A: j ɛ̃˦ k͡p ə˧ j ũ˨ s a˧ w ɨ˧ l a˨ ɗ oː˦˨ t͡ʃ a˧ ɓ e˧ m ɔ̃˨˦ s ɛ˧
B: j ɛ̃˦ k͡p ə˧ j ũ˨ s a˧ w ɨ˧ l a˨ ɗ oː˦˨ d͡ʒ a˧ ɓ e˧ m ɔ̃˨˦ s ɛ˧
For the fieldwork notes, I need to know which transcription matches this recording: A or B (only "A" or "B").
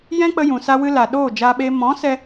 B